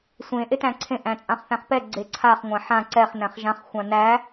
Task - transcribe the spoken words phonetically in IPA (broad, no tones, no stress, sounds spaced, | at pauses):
sʷ ẽ ʔ e t æ̃ ǀʰ ẽ ʔ æ̃ t͡sʼ ã χ θ æ̃ χ p ɛ ɡ͡ǀ e ǀʰ a χ ŋʷ ã ħ ã ǀ ɛ χ n æ̃ χ ʒ ã χ xʷ ã n æ